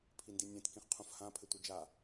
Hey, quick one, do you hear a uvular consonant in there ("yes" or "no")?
yes